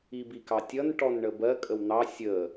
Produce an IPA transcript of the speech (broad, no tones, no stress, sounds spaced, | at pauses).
i b i k ɑ tʲ ʌ n ʈ ɔ n ɳ ə b ɜ kʼ ə w n̪ ɑ sʲ ə